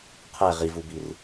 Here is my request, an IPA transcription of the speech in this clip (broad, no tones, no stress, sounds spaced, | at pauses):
qʰ ɛ ʁ i v u b i r